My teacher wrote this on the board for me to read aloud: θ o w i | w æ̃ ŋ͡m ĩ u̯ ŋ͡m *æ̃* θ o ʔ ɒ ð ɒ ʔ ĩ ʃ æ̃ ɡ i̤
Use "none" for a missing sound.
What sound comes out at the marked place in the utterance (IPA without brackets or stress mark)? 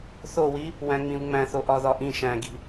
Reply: æ̃